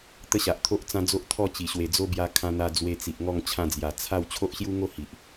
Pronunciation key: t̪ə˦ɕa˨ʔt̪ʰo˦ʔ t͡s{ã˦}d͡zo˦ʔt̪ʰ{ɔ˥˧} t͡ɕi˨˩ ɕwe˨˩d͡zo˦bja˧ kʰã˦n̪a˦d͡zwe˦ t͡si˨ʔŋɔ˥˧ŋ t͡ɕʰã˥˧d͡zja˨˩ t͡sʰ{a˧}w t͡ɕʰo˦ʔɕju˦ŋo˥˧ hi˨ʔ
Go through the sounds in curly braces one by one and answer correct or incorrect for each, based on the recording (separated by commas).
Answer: correct, correct, incorrect